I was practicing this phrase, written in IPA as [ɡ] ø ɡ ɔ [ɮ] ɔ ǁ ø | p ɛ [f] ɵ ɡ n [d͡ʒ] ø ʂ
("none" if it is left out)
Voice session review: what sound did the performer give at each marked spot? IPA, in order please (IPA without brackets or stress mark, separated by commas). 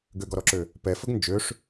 ɡ, ɾ, f, d͡ʒ